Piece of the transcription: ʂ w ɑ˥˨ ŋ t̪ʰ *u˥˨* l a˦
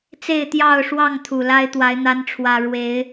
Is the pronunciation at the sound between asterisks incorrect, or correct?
incorrect